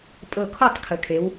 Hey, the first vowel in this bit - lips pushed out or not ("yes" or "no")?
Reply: no